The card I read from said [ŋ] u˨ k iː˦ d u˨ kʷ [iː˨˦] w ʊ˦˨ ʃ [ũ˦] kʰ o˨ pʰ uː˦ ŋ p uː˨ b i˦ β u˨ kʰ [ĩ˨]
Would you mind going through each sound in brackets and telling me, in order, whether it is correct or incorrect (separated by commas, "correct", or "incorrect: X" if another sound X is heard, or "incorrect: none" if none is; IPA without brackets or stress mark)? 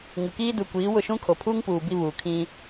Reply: correct, correct, correct, incorrect: ĩ˦